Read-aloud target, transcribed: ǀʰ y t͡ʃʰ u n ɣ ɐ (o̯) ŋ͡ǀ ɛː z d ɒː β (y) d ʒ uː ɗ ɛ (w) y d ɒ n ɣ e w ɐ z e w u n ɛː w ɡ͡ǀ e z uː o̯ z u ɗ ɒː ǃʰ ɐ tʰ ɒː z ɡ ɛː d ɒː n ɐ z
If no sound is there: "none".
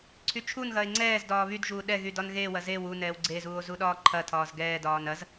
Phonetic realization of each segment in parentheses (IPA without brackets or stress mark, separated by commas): e̯, y, ɣ